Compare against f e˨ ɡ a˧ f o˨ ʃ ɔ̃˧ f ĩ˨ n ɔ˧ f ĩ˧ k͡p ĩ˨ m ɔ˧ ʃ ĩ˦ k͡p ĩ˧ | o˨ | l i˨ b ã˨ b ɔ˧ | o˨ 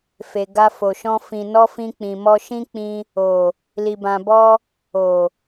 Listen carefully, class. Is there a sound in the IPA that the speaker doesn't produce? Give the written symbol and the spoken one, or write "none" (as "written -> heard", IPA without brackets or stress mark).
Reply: none